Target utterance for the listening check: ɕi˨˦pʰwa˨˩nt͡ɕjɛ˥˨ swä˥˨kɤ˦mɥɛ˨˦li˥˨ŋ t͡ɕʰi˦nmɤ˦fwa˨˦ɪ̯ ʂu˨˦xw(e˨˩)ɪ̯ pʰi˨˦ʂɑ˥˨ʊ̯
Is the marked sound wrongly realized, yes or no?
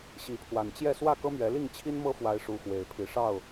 no